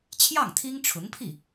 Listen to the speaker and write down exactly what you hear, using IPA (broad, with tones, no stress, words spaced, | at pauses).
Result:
t͡ɕʰjɑ˥˩ŋt̪ʰi˥ŋʈ͡ʂʰʊ˧˥ŋpʰi˥˩